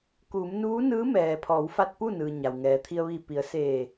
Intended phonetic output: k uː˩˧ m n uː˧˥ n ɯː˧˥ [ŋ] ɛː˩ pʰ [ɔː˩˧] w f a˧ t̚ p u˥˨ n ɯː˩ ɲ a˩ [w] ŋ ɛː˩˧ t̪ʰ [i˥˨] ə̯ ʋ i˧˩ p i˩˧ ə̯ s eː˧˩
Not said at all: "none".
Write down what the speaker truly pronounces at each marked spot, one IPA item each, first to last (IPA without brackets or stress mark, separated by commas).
m, ɔː˩˧, w, i˧